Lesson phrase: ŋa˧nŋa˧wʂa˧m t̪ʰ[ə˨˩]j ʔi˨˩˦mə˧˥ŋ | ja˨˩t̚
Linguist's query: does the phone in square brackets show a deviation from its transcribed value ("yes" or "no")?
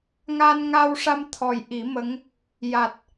yes